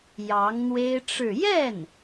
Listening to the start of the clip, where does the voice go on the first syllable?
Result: rising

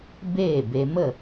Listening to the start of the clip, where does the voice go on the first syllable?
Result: falling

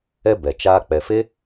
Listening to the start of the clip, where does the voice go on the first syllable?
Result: high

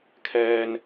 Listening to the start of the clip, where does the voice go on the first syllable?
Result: high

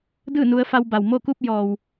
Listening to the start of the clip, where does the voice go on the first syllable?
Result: falling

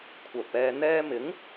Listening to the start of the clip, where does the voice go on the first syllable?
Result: low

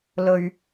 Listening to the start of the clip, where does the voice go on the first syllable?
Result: low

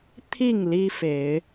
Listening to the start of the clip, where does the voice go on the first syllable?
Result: falling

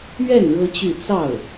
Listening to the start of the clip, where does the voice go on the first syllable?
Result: falling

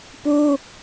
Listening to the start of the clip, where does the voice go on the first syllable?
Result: high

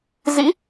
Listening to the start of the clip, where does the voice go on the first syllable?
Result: rising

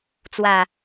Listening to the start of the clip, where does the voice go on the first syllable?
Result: low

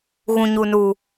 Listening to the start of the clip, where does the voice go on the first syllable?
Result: low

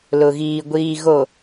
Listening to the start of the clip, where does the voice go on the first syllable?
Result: low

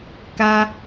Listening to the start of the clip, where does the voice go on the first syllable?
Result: high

